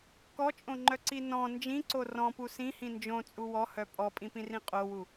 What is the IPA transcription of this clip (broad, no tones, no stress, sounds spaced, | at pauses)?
k ɔ t͡ʃʼ õ ŋ͡ǃ œ ǀ i n ɔ̃ n d͡ʒ ĩ ǀ o r ɔ̃ p u s ĩ h ĩ n d͡ʒ õ t͡sʼ u w ɔ h œ pʼ ɔ pʼ ĩ p ĩ r ĩ qʼ o w u